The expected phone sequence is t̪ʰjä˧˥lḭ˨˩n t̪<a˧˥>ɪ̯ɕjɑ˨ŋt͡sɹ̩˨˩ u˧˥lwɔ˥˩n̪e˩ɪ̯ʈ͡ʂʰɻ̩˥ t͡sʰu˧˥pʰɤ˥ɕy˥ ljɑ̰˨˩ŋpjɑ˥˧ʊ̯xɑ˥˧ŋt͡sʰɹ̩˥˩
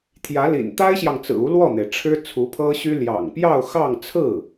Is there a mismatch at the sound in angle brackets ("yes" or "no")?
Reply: yes